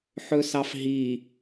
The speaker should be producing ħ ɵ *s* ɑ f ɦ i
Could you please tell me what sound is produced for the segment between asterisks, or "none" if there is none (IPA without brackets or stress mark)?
s